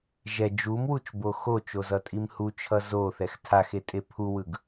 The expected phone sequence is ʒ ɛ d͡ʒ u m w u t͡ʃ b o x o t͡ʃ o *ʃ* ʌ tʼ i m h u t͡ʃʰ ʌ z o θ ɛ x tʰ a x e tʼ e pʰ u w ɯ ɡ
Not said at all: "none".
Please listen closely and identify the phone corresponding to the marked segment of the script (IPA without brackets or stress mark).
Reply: z